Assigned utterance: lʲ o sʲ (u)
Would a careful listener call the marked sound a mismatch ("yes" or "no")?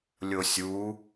no